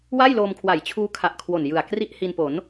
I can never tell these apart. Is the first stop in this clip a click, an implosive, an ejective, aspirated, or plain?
aspirated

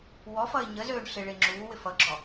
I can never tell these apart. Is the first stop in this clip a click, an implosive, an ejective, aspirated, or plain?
click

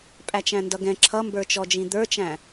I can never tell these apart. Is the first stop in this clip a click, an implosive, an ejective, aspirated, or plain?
ejective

